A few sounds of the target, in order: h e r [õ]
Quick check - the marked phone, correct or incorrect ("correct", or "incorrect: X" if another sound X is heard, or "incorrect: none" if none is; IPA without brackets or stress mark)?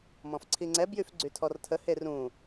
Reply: incorrect: ũ